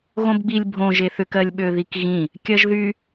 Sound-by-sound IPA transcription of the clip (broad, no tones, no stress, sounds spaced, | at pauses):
ɣ õ b ɡ͡b i lʲ bʱ õ ʒ e θ ʏ k ɜ lʲ ɓ ø ð i k ɣ ĩ | kʲ ɜ ʒ ð y